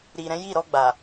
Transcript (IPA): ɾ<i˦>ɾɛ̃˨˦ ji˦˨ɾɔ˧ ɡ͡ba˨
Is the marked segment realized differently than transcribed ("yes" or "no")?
yes